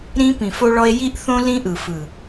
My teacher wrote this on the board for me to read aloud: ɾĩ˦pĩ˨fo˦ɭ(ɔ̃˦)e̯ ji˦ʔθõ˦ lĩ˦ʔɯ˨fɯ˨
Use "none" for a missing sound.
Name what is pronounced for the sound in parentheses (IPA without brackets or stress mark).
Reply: ɔ˦